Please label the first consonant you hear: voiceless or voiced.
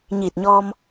voiced